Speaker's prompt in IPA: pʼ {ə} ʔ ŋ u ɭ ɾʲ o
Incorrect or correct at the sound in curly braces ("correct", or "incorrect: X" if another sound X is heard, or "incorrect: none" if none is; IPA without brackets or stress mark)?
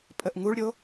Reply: correct